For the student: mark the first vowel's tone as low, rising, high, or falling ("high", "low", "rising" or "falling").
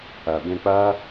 low